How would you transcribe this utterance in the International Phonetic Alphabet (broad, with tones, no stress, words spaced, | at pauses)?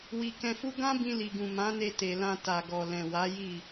wi˧ kɛ̃˧fu˦ ɡã˦bĩ˧ li˨ɡũ˨ mã˨˦ne˧ te˨lã˧ ta˨ɡɔ˨ lɛ̃˨wa˨˦ ji˦˨